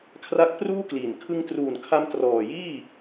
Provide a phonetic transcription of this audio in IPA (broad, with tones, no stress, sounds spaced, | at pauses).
kʰ r a˦˥ k̚ p r uː˥˩ k l i˨˩ n kʰ ɯ˧ ŋ t r uː˨˩ n kʰ a˧ m t r ɔː˨˩ j iː˥˩